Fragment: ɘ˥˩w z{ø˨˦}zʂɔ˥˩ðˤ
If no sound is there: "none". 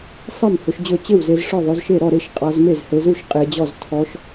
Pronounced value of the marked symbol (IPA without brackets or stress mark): e˨˦